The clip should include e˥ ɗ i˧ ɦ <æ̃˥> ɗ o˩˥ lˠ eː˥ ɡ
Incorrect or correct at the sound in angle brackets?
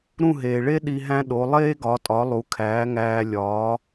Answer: correct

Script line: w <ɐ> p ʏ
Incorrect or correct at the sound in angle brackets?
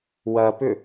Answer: correct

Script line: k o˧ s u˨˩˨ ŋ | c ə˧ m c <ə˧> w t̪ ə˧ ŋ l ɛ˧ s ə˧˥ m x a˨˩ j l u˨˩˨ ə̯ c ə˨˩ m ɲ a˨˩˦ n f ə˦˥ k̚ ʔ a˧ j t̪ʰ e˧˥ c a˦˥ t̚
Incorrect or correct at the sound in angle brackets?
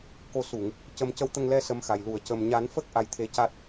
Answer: correct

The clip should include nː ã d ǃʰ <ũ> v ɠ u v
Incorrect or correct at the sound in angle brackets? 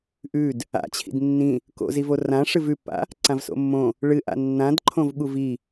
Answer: incorrect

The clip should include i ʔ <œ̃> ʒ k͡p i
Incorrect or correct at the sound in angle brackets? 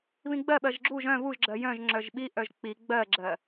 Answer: incorrect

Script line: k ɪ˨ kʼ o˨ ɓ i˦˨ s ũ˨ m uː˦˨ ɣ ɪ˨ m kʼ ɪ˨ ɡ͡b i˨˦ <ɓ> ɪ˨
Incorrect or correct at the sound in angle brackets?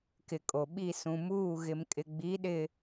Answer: incorrect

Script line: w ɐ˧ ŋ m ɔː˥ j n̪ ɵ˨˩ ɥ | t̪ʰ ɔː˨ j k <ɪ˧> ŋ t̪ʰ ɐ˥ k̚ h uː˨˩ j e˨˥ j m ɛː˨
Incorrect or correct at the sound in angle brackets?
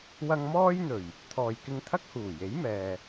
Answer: correct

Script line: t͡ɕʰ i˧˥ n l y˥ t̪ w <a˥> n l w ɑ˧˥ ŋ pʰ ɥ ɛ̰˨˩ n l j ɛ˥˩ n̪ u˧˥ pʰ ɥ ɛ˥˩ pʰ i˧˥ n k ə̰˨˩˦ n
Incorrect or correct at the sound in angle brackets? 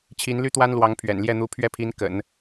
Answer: correct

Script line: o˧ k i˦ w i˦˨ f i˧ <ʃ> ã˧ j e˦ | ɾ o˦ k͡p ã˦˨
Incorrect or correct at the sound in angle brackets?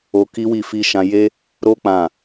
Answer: correct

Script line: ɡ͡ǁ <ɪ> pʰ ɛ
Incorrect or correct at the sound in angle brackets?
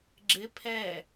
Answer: correct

